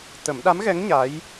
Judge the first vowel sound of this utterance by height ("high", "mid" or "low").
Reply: mid